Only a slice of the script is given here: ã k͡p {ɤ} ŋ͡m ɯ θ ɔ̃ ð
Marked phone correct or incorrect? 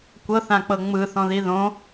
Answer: correct